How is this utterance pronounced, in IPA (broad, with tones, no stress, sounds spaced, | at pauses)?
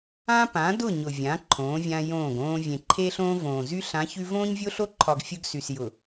ã˦ p ã˨˦ d ʊ˦˨ ɲ ʊ˨ vʲ ã˨˦ ǃʰ õː˨˦ vʲ ã˦ j õː˦˨ ɡ õː˦ vʲ ẽ˨ ǃʰ eː˦ ɬ õː˦ v õː˨ z y˦ ɬ ã˨˦ ç ʉ˦ v õː˦ ɲ vʲ o˦ ɬ o˦ ǃʰ ɒ˨ ɡ fʲ ʊ˦ ɡ s y˨ s j ʊ˨